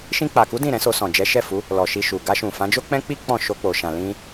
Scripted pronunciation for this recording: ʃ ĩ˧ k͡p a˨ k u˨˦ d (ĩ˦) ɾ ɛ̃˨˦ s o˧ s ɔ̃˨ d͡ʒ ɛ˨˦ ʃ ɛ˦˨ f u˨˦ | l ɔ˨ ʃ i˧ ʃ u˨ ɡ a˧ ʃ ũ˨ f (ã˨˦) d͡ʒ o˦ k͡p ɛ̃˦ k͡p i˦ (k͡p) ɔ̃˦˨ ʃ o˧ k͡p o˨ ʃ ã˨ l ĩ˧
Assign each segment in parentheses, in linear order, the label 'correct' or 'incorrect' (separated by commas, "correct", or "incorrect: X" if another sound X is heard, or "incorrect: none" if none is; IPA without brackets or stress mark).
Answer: incorrect: ĩ˦˨, correct, correct